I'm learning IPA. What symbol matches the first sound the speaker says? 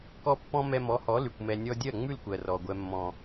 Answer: k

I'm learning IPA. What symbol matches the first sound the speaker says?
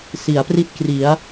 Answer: s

